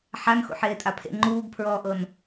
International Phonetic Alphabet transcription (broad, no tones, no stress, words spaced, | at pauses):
ħanxṵ ħeːtʼapʰḛ ŋ͡ǃuːɡpʰɹɔːʔɤn